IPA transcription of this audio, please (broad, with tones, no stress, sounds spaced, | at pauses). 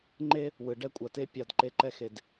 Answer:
ŋ͡ǃ e˦ | w ɯ˨ ɖ ɛ˦ kʷʼ a˨ t e˦ pʲ a˦˨ d ǃ e˦ ǃ ɛ˦ x e˨ d